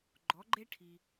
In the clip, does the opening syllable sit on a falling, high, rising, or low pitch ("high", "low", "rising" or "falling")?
rising